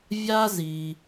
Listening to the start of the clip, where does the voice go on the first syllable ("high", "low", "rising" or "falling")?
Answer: high